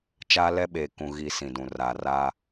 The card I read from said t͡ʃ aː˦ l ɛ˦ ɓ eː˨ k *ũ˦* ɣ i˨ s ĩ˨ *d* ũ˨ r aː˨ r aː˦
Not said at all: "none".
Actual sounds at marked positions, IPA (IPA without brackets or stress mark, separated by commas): ũ˨, d